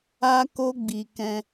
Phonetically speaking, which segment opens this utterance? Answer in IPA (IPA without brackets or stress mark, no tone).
a